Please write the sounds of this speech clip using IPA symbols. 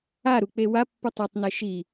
a ɾ u k͡p e w a pː ɯ tˤ ɛ tˤ n e ʃ i

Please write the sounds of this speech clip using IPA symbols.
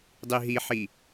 dˤ i ɦ i ħ i

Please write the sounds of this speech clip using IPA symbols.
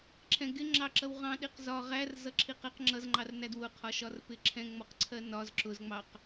ǁʰ ɛ̃ ɡ ɪ ŋ͡ǁ ɑ ǁ ʌ w ʁ ɑ̃ ɗ i q z ɒ ʁ æ r z ʌ ǁʰ i q ɛ q ŋ͡ǁ ʌ z ŋ͡ǃ ɑ r n æ d w ʊ qʰ ɒ ʃ ɒ r p ɪ ǁʰ ɛ̃ ŋ͡m ɔ q ǀʰ ɜ n ɒ z ǁ ʊ z ŋ͡m ɑ q

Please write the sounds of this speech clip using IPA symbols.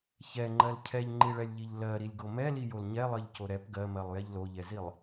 ç ɛ ŋ͡ǃ ɜ l cʰ ɛ ʎ ŋ͡ǃ i ɭ ɛ lʲ ʎ i ʎ l ɜ ɾ i lʲ ɡ o m ɛ l i j o l ɲ ɛ lˠ ɜ ʎ c o ɾ ɛ p ɡ ɜ m ɜ lˠ j ɛ ʎ l o ʎ ɛ z i lˠ

